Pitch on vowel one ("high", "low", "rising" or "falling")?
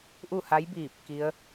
falling